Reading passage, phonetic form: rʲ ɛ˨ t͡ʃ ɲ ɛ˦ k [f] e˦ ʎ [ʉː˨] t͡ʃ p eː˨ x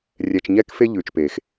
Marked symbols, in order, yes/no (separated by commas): yes, yes